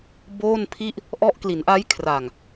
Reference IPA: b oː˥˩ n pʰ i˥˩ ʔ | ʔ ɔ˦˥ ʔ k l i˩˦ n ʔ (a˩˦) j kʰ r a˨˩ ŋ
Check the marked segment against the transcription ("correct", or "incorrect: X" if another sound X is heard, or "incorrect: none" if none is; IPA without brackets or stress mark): incorrect: a˦˥